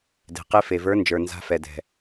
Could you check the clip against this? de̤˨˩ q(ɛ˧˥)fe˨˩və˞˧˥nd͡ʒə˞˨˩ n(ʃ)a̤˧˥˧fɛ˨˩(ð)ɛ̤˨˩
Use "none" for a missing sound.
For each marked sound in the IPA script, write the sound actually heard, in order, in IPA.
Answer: e˧˥, z, d

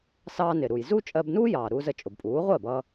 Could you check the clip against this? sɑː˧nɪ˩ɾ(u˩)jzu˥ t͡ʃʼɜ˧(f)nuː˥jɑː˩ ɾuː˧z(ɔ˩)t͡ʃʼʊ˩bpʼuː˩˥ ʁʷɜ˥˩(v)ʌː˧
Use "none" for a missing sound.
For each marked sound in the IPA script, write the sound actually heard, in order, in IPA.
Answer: u˩, b, ə˩, b

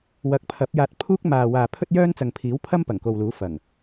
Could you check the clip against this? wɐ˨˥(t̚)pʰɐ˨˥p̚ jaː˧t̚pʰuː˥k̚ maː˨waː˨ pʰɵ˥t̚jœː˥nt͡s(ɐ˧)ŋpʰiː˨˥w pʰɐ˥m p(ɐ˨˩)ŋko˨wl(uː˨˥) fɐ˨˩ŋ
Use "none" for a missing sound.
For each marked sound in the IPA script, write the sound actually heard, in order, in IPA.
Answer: k̚, ɐ˨, ɐ˨˩, uː˨˥

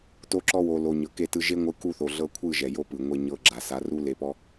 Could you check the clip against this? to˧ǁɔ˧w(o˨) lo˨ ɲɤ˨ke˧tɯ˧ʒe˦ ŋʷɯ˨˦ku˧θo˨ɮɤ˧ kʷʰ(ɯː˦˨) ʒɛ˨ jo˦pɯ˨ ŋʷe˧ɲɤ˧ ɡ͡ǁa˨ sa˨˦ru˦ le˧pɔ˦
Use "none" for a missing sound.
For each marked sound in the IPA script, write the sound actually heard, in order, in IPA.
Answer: o˨, ɯ˦˨

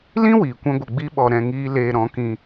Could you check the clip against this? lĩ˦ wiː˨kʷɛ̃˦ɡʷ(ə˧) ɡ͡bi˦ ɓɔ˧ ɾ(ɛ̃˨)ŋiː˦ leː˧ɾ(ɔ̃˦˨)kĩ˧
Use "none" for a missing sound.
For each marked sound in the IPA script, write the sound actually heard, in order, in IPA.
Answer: ə˧, ɛ̃˧, ɔ̃˨˦

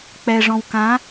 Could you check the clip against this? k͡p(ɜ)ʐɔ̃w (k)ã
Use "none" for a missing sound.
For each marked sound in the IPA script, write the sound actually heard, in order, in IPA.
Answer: ɛ, k

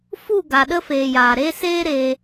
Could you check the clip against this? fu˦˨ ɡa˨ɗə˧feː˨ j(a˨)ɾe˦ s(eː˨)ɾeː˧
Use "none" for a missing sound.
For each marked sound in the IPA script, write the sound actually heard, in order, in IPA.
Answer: aː˨, eː˦

